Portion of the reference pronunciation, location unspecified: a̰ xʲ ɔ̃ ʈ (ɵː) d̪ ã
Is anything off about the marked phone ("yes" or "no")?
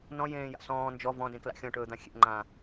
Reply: no